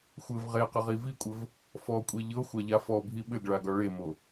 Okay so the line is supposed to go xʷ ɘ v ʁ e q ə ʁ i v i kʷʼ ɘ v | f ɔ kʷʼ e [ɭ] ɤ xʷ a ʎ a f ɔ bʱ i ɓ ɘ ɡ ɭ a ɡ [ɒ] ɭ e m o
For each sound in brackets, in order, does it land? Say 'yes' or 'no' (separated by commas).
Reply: no, yes